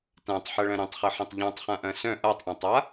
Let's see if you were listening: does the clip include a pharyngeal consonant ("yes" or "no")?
yes